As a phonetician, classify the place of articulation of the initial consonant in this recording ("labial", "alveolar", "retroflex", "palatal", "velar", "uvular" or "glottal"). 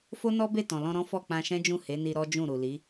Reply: labial